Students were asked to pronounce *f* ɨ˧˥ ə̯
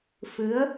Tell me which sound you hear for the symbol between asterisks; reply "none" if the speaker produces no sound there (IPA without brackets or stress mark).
f